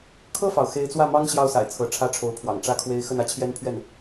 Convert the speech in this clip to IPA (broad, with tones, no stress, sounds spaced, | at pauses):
kʰ ɤ˥˩ f ɑ˩ ʊ̯ x e˧˥ ɪ̯ t͡s w ä˥˩ m ɑ˥ ŋ ɕ j ɑ˥˩ ʊ̯ s a̰˨˩ ɪ̯ t͡sʰ ɤ˧˥ ʈ͡ʂʰ ä˥ ʈ͡ʂʰ o˧˥ ʊ̯ pʰ w ɑ̰˨˩ ŋ ʈ͡ʂ ä˥˩ kʰ w e˥ ɪ̯ x ə˥˩ n ä˥ t͡ɕʰ j ɛ˥ n pʰ ɥ ɛ˥˩ n